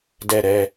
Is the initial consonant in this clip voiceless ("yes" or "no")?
no